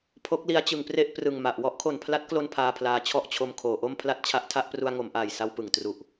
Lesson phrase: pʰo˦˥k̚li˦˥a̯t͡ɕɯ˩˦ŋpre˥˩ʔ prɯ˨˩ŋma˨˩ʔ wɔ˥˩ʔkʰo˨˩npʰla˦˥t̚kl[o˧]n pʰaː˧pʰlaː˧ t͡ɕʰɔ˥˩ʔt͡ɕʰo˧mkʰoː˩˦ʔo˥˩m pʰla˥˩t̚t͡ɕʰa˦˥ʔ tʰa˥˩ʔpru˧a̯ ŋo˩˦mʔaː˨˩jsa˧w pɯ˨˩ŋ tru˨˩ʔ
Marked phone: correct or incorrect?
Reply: correct